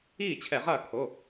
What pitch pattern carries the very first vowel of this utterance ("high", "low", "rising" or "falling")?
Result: falling